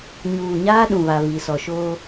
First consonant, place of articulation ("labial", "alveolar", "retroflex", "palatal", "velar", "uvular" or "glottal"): palatal